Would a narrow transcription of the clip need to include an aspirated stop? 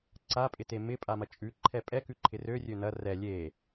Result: yes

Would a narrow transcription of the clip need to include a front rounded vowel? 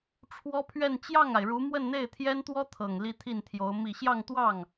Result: no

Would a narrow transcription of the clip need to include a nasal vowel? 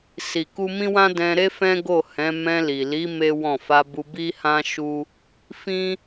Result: yes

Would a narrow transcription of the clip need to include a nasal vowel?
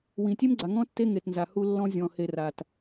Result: yes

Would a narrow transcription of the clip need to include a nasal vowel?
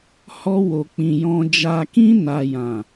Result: yes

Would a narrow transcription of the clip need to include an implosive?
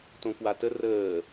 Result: no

